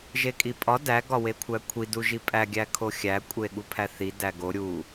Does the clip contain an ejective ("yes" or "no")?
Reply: yes